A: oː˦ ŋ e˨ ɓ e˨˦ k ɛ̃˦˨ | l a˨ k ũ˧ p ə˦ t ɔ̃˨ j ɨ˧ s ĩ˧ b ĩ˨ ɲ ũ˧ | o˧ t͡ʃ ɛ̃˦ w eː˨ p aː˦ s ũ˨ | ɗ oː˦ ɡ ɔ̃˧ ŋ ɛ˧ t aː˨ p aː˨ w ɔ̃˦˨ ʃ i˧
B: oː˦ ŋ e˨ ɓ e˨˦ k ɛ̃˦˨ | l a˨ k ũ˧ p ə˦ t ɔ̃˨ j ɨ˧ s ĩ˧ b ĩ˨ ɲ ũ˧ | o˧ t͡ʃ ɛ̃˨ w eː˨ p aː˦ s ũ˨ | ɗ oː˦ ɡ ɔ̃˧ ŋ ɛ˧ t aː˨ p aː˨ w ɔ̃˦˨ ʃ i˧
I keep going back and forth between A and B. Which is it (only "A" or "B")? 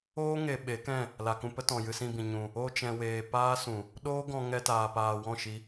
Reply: B